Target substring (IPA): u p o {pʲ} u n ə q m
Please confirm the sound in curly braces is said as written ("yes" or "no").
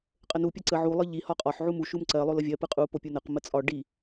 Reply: yes